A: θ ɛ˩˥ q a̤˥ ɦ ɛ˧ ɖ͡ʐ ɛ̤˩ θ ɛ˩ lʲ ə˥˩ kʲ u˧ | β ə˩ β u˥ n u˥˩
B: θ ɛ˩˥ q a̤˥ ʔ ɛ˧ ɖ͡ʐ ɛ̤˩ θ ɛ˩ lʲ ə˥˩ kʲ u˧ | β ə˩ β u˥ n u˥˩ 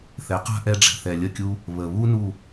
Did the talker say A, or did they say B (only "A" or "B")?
B